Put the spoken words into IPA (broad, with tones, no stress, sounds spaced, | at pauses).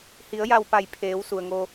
h i˩˧ ə̯ j a˧˩ w p a˧˩ j pʰ eː˩˧ w s u˩ ə̯ ŋ o˧